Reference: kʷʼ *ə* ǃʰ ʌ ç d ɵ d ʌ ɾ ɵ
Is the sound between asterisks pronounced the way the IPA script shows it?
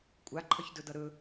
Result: no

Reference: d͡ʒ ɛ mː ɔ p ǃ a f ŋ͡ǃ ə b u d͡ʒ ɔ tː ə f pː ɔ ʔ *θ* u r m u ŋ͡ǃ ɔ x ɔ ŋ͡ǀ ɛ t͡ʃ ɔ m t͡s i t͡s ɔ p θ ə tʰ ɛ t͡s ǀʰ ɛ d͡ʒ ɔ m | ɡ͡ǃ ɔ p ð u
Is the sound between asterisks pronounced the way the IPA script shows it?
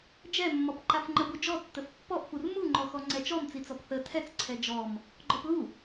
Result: no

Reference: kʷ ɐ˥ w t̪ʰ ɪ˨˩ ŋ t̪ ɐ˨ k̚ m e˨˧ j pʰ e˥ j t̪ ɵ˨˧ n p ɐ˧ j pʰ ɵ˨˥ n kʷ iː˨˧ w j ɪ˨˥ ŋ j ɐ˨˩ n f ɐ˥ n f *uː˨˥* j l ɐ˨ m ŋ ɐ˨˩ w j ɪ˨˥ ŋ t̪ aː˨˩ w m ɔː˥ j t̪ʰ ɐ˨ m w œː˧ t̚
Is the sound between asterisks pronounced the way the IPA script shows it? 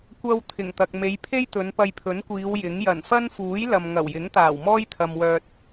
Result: yes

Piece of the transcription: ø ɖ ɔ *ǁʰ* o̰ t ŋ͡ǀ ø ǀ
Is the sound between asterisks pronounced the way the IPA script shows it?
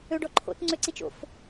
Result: no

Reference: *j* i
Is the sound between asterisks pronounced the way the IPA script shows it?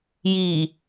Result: yes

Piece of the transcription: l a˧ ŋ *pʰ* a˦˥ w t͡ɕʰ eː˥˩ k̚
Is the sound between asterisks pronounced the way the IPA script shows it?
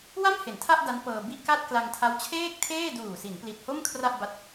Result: no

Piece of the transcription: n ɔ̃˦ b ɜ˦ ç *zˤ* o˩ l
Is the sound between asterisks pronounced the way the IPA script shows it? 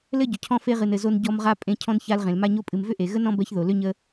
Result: no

